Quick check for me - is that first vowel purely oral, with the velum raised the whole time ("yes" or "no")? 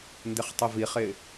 yes